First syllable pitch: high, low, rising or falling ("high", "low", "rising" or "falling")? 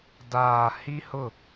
low